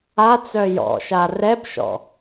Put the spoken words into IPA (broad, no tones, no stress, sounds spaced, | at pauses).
a t͡s œ j ɔ̰ ʃ a r ɛ b ʃ ɔ̰